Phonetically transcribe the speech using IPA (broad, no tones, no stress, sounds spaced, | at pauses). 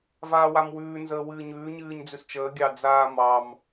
v aː w a m w ʉː n z əː w ɨː ɲ ʉː ɲ ɨː ɲ d͡z ʉ s t͡ʃ əː ɡʲ ɑ d͡z aː m ɑ m